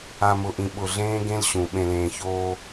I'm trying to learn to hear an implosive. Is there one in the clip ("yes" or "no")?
yes